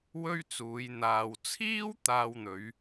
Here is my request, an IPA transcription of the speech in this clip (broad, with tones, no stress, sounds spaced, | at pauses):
w ɵ˥ ɥ t͡s uː˨˧ j n̪ aː˨ w t͡sʰ iː˥ w t̪ aː˧ w n̪ ɵ˨˧ ɥ